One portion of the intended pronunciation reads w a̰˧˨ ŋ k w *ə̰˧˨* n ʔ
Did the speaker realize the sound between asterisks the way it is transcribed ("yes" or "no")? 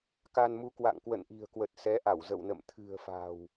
yes